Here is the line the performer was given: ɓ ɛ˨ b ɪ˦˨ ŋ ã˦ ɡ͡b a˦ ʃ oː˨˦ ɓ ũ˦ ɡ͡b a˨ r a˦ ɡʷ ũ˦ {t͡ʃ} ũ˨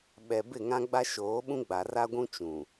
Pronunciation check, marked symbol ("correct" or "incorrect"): correct